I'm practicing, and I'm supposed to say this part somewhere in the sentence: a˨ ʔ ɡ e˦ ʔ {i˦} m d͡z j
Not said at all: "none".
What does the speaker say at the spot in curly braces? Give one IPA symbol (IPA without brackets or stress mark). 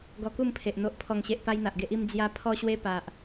i˦